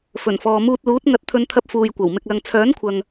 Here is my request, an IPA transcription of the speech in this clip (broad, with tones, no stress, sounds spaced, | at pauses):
f ɵ˨˩ n f ɔː˨ m uː˧ t̚ l uː˨˥ t̚ ŋ ɐ˧ t̚ t̪ʰ ɵ˧ n t̪ʰ ɐ˧ p̚ f uː˨ j kʷ ɐ˨˩ w m ɪ˨ k̚ l ɐ˨ ŋ t͡sʰ œː˨˥ n kʷʰ ɐ˨ ŋ